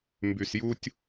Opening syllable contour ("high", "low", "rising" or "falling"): low